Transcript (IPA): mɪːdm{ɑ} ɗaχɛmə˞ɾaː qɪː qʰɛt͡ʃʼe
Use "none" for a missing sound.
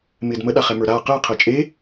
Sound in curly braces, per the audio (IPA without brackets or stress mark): ə